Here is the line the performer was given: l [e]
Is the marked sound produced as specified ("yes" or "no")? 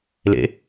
no